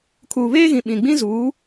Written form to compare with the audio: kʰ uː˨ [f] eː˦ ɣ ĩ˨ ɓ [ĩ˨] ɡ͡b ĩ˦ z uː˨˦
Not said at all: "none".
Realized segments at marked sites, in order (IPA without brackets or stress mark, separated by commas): β, ĩ˨